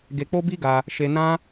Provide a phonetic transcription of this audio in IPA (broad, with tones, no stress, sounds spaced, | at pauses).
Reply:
ɡ e˧ k͡p o˦ b i˦ ɡ a˧ | ʃ e˧ n ã˦